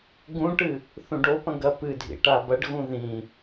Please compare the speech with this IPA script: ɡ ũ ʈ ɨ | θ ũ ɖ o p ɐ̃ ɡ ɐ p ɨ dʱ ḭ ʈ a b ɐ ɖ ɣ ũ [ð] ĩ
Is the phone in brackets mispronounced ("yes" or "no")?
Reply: no